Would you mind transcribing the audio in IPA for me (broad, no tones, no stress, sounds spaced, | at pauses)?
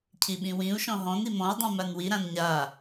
cʰ i ɓ ĩ w ĩ u̯ ʃ ɔ̃ ɦ ɔ̃ n i m ɔ̃ y̯ dˤ ĩ m a n w i ɾ ã n ɲ a